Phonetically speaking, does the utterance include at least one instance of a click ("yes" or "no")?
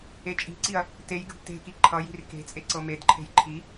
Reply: yes